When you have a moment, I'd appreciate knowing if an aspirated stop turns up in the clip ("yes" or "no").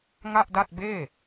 no